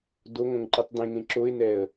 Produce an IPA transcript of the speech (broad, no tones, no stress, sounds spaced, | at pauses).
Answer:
d o ŋ õ ŋ ǃ ɯ tˤ d̪ ẽ ŋ ẽ ǁ o ɪ̯ n ɛ ə̯